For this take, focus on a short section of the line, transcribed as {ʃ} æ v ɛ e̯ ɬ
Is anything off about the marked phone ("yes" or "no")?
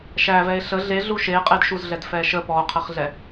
no